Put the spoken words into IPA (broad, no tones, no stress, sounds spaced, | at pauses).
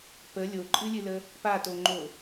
p ə lʲ o ǃʼ ɨ lʲ ɨ l ə | p a t o ŋ͡ǃ o